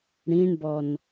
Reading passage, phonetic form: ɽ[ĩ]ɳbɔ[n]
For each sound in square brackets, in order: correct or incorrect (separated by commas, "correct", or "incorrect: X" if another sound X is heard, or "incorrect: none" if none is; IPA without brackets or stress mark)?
correct, correct